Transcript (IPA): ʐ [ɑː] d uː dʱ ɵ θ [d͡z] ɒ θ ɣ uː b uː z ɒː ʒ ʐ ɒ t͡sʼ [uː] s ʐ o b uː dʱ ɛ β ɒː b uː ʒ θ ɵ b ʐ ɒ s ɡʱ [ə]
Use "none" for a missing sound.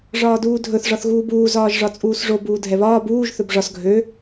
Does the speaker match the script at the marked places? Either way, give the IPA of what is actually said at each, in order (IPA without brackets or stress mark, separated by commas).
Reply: ɒː, ʐ, uː, ø